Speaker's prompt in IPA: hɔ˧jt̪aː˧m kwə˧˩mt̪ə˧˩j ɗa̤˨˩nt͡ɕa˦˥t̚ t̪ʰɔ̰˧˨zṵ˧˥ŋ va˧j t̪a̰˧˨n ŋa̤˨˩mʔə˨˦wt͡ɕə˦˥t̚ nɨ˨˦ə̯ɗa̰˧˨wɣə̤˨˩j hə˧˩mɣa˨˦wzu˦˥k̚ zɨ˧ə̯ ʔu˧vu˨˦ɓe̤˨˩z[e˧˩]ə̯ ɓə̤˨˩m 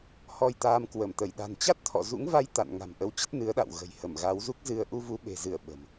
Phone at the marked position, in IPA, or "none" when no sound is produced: ɨ˧˩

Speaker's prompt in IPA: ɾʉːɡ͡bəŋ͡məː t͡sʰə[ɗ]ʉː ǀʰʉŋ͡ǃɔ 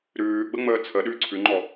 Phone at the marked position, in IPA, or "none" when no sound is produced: ɗ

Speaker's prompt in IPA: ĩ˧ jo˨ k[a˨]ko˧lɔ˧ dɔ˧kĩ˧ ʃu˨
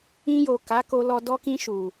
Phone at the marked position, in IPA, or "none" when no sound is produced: a˨˦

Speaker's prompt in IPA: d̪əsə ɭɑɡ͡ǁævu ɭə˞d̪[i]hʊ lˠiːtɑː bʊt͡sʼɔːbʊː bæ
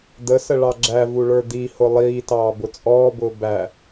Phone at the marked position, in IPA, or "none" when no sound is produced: i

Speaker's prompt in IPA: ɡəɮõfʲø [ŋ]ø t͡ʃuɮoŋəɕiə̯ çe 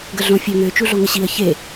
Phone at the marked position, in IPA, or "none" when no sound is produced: ŋ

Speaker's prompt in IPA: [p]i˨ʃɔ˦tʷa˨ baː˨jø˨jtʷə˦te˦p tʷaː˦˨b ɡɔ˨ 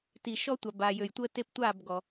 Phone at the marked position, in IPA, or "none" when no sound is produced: t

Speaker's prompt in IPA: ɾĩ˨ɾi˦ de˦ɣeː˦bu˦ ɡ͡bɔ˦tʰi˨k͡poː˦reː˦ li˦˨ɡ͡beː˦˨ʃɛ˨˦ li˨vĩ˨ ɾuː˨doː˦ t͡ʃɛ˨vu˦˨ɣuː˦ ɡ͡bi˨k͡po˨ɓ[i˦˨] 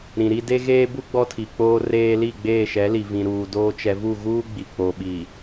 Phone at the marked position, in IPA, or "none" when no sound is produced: i˨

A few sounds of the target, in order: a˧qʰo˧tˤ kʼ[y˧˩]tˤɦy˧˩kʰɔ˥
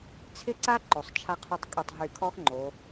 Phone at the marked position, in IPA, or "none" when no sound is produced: y˧˩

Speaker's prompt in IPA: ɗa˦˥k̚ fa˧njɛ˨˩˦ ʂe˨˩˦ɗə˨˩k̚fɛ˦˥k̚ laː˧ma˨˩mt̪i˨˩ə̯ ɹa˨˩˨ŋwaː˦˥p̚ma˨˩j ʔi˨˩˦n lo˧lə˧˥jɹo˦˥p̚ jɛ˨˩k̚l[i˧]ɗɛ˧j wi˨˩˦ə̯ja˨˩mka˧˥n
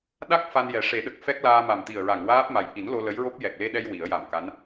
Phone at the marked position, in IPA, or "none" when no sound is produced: e˧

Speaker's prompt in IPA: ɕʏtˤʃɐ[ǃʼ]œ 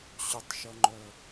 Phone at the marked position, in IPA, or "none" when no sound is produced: ŋ͡ǃ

